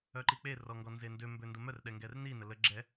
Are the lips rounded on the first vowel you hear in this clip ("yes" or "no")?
yes